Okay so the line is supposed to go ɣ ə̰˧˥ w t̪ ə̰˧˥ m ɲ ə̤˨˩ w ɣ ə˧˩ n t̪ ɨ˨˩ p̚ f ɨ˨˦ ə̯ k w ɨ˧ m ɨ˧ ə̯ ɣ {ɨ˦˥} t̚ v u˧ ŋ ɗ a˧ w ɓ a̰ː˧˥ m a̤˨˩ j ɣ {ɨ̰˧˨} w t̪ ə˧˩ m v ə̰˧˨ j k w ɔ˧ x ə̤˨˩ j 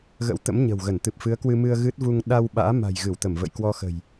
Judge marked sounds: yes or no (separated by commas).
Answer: yes, no